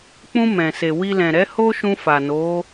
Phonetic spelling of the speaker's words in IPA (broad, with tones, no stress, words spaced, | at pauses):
k͡pũ˧ mɛ̃˨se˨wi˧ lɛ̃˨ɾɛ˨˦ ho˦ʃũ˧fa˨ no˨˦